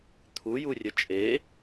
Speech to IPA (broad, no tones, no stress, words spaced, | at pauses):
t̪ʰujurʲə t͡ʃʼe